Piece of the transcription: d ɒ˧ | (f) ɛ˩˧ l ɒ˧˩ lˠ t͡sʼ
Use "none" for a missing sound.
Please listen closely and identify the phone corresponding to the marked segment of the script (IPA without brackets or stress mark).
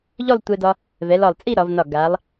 v